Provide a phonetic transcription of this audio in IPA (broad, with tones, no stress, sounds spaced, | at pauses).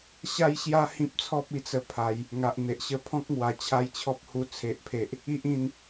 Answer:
ɕ a˦ j ɕ j a˦ h ĩ˦ p̚ t͡sʰ ɔ˦ p̚ i˧ t͡s ə˥˧ pʰ a˨˦ j | ŋ a˨ ʔ n̪ e˨ ʔ ɕ ə˧ pʰ ɔ̃˦ k̚ ŋ w a˨˩ t͡ɕʰ a˥˧ j t͡ɕʰ ɔ˦ p̚ h u˧ t͡sʰ e˨ ʔ pʰ e˨ ʔ | i˦ ʔ ĩ˥˧ n